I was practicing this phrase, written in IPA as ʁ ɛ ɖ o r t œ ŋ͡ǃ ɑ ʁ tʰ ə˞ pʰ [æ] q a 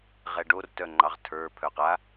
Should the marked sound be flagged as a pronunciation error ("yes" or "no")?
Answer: yes